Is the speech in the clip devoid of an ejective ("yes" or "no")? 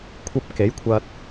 yes